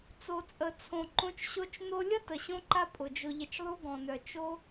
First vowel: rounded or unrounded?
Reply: rounded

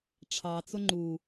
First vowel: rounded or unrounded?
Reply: unrounded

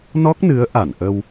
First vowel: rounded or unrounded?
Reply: rounded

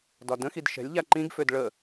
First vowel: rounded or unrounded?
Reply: rounded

